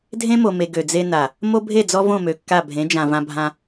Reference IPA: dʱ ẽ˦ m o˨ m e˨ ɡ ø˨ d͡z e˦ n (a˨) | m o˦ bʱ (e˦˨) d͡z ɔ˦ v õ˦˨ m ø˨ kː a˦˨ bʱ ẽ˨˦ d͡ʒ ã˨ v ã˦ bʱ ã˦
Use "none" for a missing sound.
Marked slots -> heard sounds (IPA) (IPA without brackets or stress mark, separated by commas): a˨, e˦˨